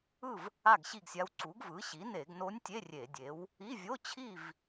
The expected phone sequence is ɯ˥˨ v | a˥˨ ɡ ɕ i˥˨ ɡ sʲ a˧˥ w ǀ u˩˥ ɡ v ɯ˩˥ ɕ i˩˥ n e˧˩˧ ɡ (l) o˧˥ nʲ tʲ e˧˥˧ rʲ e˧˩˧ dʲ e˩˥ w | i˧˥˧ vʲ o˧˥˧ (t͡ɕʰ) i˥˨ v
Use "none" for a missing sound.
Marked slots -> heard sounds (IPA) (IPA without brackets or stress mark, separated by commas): n, t͡ɕʰ